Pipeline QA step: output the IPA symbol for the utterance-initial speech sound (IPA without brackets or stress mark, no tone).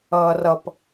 ʌː